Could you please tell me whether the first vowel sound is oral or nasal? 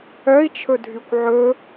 oral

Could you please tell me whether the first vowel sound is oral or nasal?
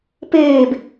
oral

